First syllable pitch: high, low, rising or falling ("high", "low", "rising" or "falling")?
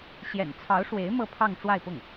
low